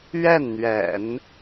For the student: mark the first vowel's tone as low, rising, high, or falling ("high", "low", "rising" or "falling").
falling